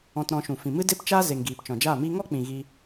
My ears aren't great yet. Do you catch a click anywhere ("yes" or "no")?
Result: no